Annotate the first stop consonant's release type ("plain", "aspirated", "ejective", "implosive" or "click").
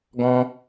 plain